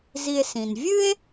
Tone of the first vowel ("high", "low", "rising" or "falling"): low